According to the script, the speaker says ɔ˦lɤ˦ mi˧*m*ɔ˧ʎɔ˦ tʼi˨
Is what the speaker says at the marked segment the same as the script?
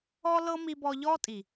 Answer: no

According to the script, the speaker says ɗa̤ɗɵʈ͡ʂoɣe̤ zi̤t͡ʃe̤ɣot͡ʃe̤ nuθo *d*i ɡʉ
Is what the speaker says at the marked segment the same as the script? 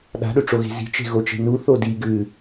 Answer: yes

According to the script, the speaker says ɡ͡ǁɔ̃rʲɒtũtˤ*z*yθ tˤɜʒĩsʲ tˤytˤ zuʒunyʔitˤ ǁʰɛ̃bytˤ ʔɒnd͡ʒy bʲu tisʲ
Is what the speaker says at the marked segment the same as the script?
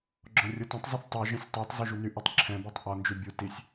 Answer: no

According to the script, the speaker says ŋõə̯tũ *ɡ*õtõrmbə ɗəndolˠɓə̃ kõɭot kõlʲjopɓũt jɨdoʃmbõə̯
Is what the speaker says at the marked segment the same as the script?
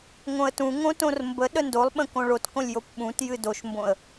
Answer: no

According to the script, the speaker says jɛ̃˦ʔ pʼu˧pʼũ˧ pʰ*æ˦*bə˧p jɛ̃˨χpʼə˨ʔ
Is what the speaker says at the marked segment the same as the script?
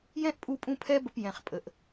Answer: no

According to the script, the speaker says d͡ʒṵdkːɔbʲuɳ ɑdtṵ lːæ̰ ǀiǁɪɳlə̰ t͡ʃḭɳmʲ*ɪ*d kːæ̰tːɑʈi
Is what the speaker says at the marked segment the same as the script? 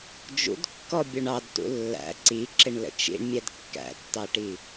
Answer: no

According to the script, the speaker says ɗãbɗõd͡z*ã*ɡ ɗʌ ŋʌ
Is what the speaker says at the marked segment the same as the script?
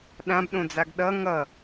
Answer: no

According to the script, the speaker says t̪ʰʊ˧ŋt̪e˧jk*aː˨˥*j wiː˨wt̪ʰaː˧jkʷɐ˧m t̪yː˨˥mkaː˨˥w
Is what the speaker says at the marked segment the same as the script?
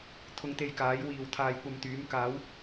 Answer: yes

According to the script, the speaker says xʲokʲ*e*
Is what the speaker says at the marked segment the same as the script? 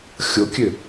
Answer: no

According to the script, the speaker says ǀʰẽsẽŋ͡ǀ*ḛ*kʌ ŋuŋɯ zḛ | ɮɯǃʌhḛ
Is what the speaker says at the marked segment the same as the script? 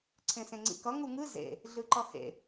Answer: no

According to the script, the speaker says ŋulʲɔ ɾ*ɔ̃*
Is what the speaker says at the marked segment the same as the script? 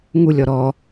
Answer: no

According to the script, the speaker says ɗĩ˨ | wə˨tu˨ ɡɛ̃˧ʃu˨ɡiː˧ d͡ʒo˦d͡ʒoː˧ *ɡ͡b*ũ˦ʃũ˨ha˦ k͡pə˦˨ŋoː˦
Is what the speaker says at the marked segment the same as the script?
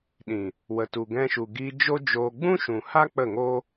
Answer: yes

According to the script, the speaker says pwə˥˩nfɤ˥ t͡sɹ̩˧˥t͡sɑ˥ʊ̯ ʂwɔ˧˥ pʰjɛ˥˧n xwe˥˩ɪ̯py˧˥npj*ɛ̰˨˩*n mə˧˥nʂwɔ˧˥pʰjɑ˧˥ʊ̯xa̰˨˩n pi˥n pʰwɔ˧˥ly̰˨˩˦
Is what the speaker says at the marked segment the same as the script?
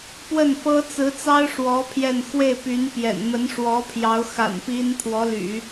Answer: yes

